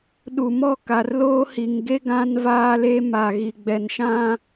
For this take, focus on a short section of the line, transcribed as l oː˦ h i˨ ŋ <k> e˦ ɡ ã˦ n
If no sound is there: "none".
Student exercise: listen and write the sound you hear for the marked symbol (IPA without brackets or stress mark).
ɡ